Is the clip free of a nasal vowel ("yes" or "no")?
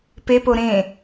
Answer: no